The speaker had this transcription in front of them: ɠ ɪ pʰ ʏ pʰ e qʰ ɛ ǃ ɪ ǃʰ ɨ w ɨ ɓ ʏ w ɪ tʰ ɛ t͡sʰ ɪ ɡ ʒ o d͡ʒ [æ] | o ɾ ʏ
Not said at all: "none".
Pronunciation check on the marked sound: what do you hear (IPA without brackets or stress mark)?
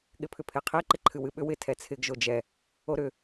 ɛ